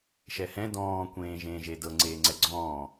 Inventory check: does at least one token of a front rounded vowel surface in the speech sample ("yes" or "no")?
no